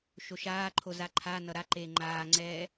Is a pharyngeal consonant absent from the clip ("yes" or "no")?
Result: yes